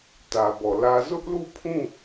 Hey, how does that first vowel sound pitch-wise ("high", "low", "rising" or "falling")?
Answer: low